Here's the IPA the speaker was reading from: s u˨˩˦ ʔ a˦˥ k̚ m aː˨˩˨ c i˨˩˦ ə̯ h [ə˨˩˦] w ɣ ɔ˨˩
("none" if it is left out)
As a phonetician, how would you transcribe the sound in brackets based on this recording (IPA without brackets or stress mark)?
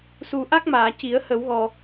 ə˨˩˦